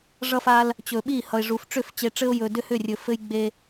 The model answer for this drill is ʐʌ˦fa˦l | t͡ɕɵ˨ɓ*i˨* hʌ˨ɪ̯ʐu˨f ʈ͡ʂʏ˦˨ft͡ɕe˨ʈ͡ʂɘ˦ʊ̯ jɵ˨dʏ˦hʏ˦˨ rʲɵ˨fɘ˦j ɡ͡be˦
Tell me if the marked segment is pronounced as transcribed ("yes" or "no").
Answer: no